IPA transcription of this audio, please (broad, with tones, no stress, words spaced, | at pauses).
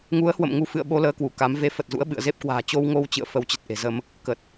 ŋu˨˦ə̯hwə̰˧˨m ŋu˧fɨ̰˧˨ə̯ɓo˧ ləː˧kwu˧˩ ka˨˦m ve˨˦ fə˨˩t̚zṵ˧˥ə̯ ɓɨ̰˧˨ə̯ze˦˥p̚kwa̤ː˨˩ t͡ɕo˧wŋo˧wt͡ɕɨ̰˧˨ə̯ fə˧wt͡ɕə˨˩t̚ʔe̤˨˩zə˧m | kə˨˩t̚